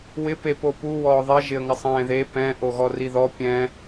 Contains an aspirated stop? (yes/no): no